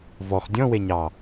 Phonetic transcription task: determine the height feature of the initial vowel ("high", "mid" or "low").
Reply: mid